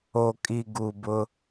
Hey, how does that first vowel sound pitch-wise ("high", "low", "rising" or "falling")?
low